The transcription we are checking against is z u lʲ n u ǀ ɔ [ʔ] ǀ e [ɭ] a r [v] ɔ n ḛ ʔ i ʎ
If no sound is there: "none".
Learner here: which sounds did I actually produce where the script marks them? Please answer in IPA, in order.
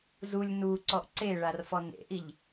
ʔ, ɭ, f

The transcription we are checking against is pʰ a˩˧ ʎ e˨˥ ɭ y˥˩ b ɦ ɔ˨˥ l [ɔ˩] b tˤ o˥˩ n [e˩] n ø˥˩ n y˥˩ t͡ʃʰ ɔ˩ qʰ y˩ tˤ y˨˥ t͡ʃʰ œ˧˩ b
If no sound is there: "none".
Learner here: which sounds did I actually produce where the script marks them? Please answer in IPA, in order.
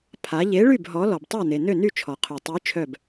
ɔ˩, e˩

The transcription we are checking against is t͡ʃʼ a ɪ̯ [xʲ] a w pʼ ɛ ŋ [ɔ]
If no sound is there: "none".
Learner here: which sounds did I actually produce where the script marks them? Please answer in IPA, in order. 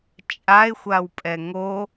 xʷ, o

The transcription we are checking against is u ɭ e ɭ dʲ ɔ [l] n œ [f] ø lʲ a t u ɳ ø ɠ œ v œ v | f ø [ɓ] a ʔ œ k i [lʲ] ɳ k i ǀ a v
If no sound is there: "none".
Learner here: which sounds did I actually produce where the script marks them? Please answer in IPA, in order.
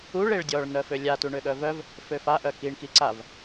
ɭ, f, f, none

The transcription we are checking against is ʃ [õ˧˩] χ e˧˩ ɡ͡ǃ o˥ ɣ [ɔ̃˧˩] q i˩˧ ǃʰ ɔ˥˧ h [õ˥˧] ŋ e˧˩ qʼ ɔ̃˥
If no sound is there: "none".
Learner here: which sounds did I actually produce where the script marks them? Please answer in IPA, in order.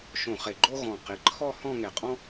õ˧˩, ɔ̃˧˩, ɔ̃˥˧

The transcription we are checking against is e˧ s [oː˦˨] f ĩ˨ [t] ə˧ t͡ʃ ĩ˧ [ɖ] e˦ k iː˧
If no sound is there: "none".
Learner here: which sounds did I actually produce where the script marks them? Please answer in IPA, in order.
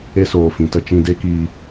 oː˨, t, d

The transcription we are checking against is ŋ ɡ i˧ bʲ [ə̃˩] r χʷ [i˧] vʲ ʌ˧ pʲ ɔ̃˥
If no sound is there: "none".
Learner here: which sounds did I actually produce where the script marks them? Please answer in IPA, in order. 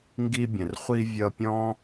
ə̃˩, i˧

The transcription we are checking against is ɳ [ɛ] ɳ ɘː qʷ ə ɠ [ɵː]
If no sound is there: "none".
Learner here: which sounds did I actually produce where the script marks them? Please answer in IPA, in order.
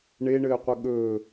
e, ɵː

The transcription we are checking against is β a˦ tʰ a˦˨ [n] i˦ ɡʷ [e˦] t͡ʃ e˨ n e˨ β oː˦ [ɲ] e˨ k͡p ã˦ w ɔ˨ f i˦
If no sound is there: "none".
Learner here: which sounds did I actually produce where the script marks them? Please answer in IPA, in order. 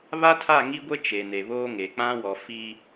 ŋ, e˦, ŋ

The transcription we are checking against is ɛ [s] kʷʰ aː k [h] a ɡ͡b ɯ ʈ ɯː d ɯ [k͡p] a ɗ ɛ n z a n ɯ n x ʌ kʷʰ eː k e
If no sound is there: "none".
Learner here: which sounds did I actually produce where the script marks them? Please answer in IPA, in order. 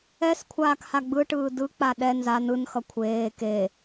s, h, k͡p

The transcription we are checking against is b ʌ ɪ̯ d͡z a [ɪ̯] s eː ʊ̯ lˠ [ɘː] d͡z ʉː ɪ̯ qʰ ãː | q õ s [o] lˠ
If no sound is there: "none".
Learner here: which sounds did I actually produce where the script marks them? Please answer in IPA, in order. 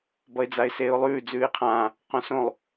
ɪ̯, ʉː, õ

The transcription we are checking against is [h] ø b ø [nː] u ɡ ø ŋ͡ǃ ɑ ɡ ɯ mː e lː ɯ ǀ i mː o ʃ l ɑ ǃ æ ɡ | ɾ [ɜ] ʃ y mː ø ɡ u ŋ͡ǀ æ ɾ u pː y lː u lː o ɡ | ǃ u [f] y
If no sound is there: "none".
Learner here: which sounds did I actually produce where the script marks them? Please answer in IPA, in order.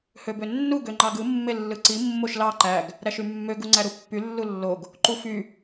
h, nː, æ, f

